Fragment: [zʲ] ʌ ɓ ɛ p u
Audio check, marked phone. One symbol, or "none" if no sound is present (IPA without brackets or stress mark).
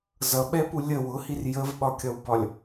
z